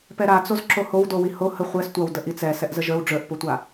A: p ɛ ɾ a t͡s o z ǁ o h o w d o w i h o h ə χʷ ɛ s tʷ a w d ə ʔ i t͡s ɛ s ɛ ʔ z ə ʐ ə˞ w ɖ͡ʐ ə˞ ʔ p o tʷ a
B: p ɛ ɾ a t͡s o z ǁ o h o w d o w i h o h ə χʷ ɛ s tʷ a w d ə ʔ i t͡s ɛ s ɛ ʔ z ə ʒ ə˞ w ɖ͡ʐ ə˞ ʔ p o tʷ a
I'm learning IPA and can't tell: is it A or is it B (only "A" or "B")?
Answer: B